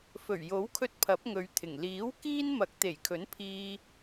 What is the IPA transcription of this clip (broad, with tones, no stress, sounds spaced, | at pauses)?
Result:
f ɵ˨˩ ɥ j o˨˥ w kʰ ɵ˧ t̚ pʰ ɐ˨˥ p̚ ŋ ɵ˨˧ ɥ t̪ʰ ɪ˨˩ ŋ l iː˨˥ w k iː˥ n m ɐ˨˥ k̚ t̪ e˨˩ j kʰ ɵ˨˥ n pʰ iː˧